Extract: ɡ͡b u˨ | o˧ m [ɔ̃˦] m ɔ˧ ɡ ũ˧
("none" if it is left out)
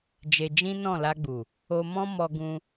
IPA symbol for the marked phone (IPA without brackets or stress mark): ɔ̃˦